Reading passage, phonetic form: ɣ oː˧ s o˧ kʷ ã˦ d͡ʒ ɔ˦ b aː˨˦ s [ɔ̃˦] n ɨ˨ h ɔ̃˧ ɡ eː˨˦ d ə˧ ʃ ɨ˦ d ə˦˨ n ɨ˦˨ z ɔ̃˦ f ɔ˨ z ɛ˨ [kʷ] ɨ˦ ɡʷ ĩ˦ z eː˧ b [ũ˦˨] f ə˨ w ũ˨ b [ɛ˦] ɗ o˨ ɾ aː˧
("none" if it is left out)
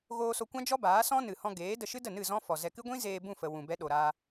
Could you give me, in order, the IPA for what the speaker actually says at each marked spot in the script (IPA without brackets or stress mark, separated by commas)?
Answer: ɔ̃˦, k, ũ˦˨, ɛ˦